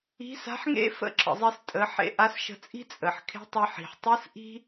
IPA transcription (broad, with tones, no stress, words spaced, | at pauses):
i̤˧˥sa̤˧˥ħŋḛ˥ fə̰˥ǁə̰˩zˤi˧s tʼə˩˧ħḛ˧ ʔa˧˥sʃə̤˧t͡sʼi̤˥ t͡sʼə˩ħkʰe̤˧˥ tˤə˧ ħi̤˩ħtˤɯ˧˥s ʔi̤˥